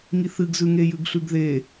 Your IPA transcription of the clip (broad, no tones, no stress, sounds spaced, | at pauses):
ŋ i θ ɨ ɡ z ʉ ŋ e j ʉ ɡ ɬ ʉ ɡ ð e